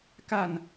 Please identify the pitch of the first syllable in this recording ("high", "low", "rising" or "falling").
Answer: falling